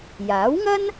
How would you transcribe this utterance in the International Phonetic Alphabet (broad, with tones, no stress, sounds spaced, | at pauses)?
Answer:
j aː˨˥ w ŋ ɐ˥ n